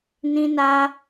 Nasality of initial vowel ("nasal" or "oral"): nasal